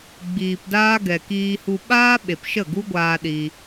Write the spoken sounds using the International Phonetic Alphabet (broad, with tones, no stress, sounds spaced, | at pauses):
ɡ͡b iː˨ p d aː˦ ɡ ɛ˨ k iː˧ h u˧ ɓ aː˦ ɓ e˨ p ʃ ə˦˨ ɡ u˦ ɡʷ aː˦ ɗ iː˧